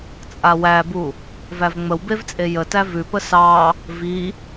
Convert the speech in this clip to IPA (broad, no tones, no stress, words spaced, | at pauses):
t͡sʼawæbu | vævŋ͡məwbevt͡sʼe jətæ vʉpə sɑ | vi